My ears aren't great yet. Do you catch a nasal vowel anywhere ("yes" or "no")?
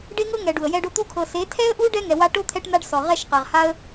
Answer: no